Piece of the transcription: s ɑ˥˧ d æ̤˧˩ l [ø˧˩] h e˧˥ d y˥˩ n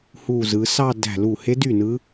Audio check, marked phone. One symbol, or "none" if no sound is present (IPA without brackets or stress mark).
u˧˩